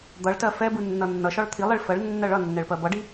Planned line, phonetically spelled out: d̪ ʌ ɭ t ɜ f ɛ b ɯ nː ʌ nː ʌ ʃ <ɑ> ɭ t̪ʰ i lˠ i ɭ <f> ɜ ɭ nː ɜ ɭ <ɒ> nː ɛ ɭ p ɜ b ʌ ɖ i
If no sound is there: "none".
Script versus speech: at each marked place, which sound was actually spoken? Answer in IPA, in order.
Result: ɒ, f, ʌ

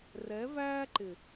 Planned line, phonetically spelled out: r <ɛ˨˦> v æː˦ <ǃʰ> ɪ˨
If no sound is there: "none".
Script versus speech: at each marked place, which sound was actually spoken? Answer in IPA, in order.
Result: ɛ˨˦, ǃ

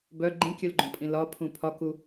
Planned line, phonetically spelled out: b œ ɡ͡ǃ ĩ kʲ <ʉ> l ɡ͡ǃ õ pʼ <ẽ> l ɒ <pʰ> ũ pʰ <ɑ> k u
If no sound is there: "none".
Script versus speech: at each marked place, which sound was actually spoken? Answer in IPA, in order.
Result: ʉ, ĩ, pʰ, ɒ

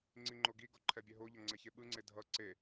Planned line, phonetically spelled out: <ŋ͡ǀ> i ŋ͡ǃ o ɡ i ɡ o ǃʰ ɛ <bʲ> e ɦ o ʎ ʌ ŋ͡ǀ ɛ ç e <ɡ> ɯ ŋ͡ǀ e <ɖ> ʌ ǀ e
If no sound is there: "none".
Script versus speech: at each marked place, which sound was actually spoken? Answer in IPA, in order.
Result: ŋ͡ǀ, bʲ, ɓ, dʱ

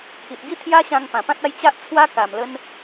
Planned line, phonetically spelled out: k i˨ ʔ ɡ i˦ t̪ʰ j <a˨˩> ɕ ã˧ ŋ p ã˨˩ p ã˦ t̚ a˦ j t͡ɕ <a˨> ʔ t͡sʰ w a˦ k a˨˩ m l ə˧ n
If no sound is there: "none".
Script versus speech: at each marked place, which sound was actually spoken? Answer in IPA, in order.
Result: a˦, a˦

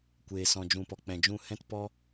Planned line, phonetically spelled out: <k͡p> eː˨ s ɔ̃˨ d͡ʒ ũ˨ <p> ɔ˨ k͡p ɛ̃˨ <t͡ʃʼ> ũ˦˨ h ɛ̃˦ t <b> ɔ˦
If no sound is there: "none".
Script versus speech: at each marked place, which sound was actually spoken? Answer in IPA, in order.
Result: kʷ, p, d͡ʒ, p

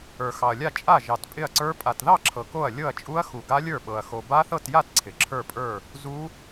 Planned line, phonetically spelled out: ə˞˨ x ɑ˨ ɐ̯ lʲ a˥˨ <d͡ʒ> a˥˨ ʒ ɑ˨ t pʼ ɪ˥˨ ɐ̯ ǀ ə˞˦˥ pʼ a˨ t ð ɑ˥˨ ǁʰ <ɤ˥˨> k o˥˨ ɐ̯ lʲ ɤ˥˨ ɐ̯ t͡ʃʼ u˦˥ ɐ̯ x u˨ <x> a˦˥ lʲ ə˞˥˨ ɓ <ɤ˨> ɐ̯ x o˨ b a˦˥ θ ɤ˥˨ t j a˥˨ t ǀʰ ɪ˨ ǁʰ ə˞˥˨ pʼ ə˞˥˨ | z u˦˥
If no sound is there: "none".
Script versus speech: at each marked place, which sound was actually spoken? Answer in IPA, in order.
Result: t͡ʃʼ, ɤ˨, ɡ, ɤ˨

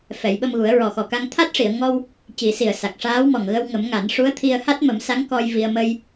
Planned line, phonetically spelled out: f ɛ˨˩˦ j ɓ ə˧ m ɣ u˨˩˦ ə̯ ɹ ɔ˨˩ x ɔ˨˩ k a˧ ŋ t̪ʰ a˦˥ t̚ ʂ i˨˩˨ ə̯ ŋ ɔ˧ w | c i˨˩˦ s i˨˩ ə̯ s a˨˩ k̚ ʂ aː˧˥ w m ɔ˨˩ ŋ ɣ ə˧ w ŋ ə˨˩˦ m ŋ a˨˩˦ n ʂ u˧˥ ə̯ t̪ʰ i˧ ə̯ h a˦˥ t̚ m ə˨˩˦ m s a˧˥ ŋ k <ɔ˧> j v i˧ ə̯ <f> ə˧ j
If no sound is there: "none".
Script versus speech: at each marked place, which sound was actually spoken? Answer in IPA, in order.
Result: ɔ˧, m

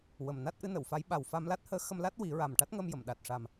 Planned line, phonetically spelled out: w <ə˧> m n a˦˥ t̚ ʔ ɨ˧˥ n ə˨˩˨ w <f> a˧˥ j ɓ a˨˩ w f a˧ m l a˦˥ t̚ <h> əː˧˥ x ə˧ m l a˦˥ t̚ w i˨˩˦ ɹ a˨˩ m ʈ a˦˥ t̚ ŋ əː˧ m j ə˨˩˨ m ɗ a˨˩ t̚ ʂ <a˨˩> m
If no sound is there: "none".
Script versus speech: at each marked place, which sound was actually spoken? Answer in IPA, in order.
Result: ə˨˩, f, h, a˨˩

